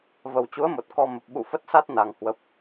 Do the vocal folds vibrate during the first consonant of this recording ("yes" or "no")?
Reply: yes